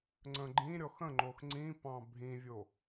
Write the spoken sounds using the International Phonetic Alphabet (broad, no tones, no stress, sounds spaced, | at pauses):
ŋ͡ǀ ə̃ ɡ͡ǃ ĩ ɾʲ ɔ x ə̃ ŋ͡ǃ o x ŋ͡ǀ ĩ p ɑ̃ bʱ ĩ vʲ o